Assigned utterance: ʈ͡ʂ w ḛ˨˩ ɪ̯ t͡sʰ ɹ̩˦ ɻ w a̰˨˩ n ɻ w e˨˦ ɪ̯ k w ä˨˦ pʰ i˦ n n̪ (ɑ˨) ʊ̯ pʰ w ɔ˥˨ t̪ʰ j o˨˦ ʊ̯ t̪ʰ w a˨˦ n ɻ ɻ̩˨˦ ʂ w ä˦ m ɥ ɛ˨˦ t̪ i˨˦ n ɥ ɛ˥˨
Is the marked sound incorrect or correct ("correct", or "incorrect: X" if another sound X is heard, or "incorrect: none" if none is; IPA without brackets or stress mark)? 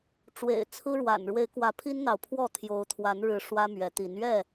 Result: correct